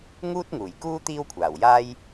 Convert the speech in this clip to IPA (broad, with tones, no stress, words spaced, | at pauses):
ŋuː˥t̚ŋuː˨˩jkuː˥ t̪iː˥wkʷʰaː˨˩w jaː˥j